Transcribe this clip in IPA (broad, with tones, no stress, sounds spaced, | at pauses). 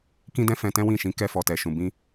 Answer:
k ĩ˦ d ɛ̃˦ f ɛ̃˧ t ɛ̃˦ w ĩ˦˨ ʃ ĩ˨˦ k ɛ˧ f ɔ˨ t ɛ˨ ʃ ũ˨ b ĩ˧